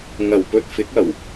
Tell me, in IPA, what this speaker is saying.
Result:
ŋ ɐ˨˩ w p ɵ˧ t̚ f ɪ˨˥ k̚ ɐ˨˩ w

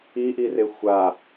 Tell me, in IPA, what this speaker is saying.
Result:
i ʔ i r e xʷ a

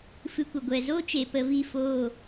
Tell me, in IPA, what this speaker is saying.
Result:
f ɨ˧ kʷ ə˨ ɡʷ ɛ˨ z o˦ t͡ʃ e˨ p ə˧ v i˦˨ f oː˦˨

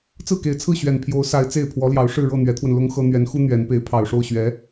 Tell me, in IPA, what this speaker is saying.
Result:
t͡s ɹ̩˥˩ k e˨˩ ɪ̯ t͡sʰ ɹ̩˥˩ ɕ ɥ ɛ˨˩ n pʰ j o˧˥ ʊ̯ s a˧˥ ɪ̯ t͡s e˥˩ ɪ̯ pʰ w ɔ˧˥ l j ɑ˧˥ ʊ̯ ʂ ɻ̩˥˧ ɻ ɤ˥˩ n̪ ɥ ɛ˧˥ t̪ʰ w ə˧ n l ʊ˥ ŋ x ɤ˥ n̪ ɥ ɛ˧˥ n x u˥ n̪ ɥ ɛ˧˥ n p e˧˥ ɪ̯ pʰ ɑ˨˩ ʊ̯ ʂ o˥˩ ʊ̯ ɕ ɥ ɛ˧˥

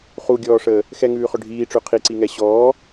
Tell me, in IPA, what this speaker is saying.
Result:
χ u ɡʲ ɔː ʂ əː | x ɛ ŋ ʉː χ œ ɖʱ iː ʈ͡ʂ ʉ qʰ i ǀ i ŋ ɛ ɕ ɔː

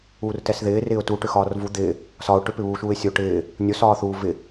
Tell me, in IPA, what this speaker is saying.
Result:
uː r t ɛ s ð ɪː r ɪː ʊ̯ t u ʈ ʏ x ɒː r v u d̪ ɪː | s ɒ ʊ̯ ʈ ʏ p ɪ β uː ʃ uː ɪ̯ sʲ o ʈ ɪː | nʲ o s ɒː θ uː v ɪ

